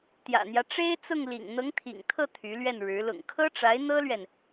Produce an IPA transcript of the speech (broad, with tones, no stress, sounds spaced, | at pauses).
t̪ j ä̰˨˩ n̪ j ä˦ ʈ͡ʂ e˥ ɪ̯ t͡s ʊ˥˩ ŋ l ḭ˨˩ ŋ n̪ ɤ˧˥ ŋ t̪ʰ ḭ˨˩ ŋ t̪ʰ ɤ˥˩ t̪ʰ y˧˥ l ɥ ɛ˥˩ n ɻ ɻ̩˧˥ l ʊ̰˨˩ ŋ kʰ ɤ˥ ʈ͡ʂ a˧˥ ɪ̯ n̪ ɤ˥ l ɥ ɛ˨ n